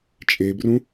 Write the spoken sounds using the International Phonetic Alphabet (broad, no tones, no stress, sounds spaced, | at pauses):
t͡ʃʼ e b r ũ